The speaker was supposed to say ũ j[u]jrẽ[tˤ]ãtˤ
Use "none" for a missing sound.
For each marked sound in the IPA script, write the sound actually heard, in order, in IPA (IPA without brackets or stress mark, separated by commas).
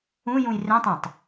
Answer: ũ, tˤ